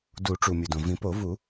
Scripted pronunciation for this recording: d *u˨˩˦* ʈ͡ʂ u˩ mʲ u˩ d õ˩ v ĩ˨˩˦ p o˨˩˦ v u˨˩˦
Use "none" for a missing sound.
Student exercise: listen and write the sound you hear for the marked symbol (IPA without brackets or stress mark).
u˨˩˦